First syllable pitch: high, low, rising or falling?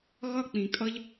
falling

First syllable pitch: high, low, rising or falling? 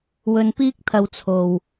low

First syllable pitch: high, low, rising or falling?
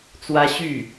high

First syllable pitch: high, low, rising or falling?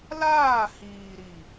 falling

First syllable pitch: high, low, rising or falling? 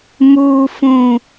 low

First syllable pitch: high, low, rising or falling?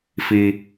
high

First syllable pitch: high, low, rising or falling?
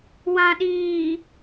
low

